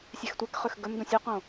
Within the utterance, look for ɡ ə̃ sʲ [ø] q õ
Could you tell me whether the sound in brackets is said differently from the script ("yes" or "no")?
no